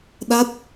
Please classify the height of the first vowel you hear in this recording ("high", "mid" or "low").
low